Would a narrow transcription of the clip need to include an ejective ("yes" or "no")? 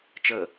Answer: no